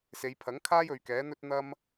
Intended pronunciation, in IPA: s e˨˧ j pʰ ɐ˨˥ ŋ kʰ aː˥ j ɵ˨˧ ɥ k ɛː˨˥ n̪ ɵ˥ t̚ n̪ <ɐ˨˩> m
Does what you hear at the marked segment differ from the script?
yes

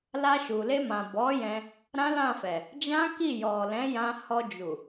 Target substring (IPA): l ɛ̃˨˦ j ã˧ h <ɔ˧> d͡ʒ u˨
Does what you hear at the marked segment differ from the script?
no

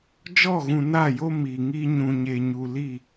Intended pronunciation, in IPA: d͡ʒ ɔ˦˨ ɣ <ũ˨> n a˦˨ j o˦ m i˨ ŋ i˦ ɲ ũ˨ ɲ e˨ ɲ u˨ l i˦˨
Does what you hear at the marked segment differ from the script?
no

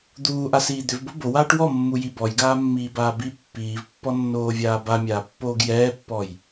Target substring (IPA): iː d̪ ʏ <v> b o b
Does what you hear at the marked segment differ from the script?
no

